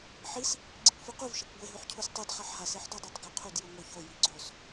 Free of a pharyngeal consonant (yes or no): no